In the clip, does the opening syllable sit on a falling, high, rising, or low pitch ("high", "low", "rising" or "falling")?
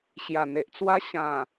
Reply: low